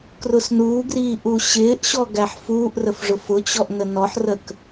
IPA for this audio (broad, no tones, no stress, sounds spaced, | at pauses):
k r ʊ s n uː ɡ r iː ʔ u ɕ ɪː ʔ ɕ ɔ ɡ æ ħ f uː ʔ r ə f ʐ ʊ f ʊ t͡ɕ ɔ ʔ n ə n ɔ ħ r ə k